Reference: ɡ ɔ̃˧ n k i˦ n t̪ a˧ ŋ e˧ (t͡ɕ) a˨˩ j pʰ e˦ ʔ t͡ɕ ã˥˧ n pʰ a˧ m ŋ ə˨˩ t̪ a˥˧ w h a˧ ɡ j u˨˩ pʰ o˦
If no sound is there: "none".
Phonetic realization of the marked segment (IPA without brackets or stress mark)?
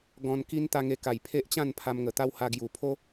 k